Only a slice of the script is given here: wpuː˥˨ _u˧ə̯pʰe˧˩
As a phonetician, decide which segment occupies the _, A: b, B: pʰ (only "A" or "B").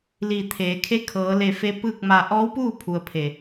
B